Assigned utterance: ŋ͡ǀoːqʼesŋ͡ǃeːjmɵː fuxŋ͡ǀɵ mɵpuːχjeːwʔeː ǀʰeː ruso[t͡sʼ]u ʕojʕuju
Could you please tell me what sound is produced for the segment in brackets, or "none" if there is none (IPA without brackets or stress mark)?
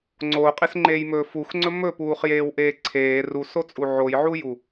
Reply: t͡sʼ